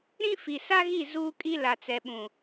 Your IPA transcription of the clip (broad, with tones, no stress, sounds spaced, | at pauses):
ɾ ĩ˦ f i˨ s a˦ ɣ i˦˨ z uː˦ kʼ i˦ l a˨ t͡s ɛ˨ ɓ ũ˨